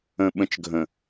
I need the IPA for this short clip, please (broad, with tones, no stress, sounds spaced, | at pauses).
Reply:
ə̃˨ ɓ ə̃˨ t͡ʃ ɡʱ ə̃˨